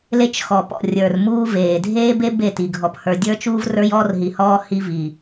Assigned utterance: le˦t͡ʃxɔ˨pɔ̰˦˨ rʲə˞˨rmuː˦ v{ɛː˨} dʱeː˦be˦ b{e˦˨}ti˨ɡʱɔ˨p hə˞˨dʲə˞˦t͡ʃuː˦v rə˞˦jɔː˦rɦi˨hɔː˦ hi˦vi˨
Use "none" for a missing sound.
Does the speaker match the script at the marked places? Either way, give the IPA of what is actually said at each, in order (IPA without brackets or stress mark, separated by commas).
eː˨, e˦˨